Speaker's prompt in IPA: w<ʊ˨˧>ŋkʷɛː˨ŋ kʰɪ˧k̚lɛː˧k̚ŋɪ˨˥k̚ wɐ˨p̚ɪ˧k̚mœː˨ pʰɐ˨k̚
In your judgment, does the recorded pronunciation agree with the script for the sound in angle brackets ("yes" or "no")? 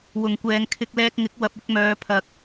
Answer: no